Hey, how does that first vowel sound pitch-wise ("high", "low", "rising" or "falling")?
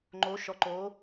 rising